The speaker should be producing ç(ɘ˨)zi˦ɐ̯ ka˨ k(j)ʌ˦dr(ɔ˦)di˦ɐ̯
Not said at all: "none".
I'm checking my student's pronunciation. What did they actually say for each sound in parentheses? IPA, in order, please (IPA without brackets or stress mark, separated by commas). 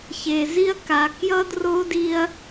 e˨, j, o˦